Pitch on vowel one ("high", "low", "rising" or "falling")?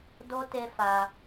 high